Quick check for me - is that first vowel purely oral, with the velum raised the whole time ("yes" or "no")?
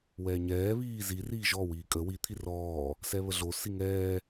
yes